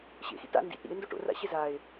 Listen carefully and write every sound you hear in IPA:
ɕḛxḭt a̰ ndḭt ɾḭe̯ndo ʈo̰ra̰ɕe zae̯

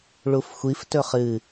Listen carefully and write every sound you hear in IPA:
ɭufxʷif tɵχɨ

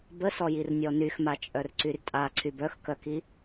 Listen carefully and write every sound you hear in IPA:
bəsɔjir nʲɔnyxma t͡ʃʼœrǀyrtʼa ǀʰybœxkœki

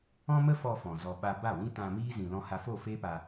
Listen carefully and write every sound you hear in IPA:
ɔ̃˦mə˦fɔ˧ fɔ̃˨zɔ˧ ɓa˧ ba˦˨wĩ˦ tã˧miː˦ zĩ˨lɔ̃˧ha˧ fo˦˨ fe˦pa˧

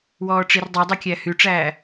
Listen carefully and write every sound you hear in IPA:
wɔːʈ͡ʂirdˤɛdˤi kʲæhyʈ͡ʂæː

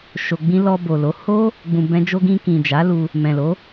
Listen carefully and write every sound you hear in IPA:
ʃo˨ɡ͡bĩ˧ lɔ˧bo˨lo˨˦ ho˦ | ɡ͡bũ˨bɛ̃˧d͡ʒo˧ɡĩ˧ kĩ˨d͡ʒa˨˦lu˧ | mɛ̃˨lo˨˦

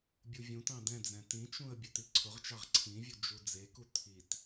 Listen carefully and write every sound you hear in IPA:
bʲuvʲũtɑ̃ dɛ̃d͡zɛ̃ tĩt͡ʃũə̯ bʲɘt̪iǀʰʊʁt͡ʃɑʁ ǀʰĩvʲu d͡ʒud͡zeku t̪ʰit

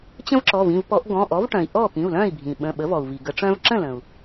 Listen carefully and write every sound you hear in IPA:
t͡ɕə̃˦vǁɔ˩˧˩v ĩ˥˩vpɔ˨˩˦ʔ ɡɔ̃˩˧˩ʔɔ˩˥vʈœ̃˩i̯ ʔɔ˥˩pĩ˩˧˩u̯lœ̃˥˩i̯bʱĩ˩ ɓə̃˩˧˩ɓə˩˥vɔ˩u̯vi˩ ɡə˨˩˦ʈ͡ʂœ̃˦v ǁə̃˥˩lə̃˩u̯

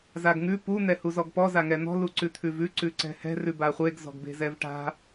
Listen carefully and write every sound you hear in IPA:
zaɡŋʉ pu n̪ɛhuzɔɡpɔ zaŋɛn̪ɔ̤ luǀʉt̪ʰʉvʉ ǀʉǀɛ̤hɛ̤ rʉbaχʷeɡ zɔ̤ɡbe̤zɛvʈa̤

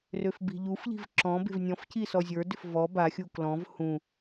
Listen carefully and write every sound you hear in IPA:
røfbi̤ʎufʎi̤v ǁɔ̃ be̤vnʲɔ̃fci sɔzʲə˞dʏf vɔ baxʲu klɔ̃v hũ

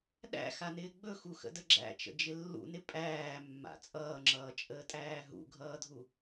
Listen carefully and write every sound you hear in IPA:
ɗæ̰xanɪː ɡ͡bɵxuxə̰də ɡ͡ǁæ̰t͡ʃə̰d͡ʒɪ lːṵnɪ pʼæːmːa̰ t͡sʼʌːŋ͡ǁʌːt͡ʃʼəːtʼæː ɦṵɡʱʌːdʱu

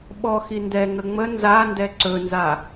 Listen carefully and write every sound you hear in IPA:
ɓɔ xindɛ ŋəŋ͡mə nzandɛ ǀɵnza

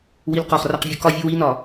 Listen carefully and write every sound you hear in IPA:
wilqɒχraq vʲukɒvʲu winɒ

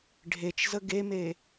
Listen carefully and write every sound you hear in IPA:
ɖʱet͡ʃzə ɡeme

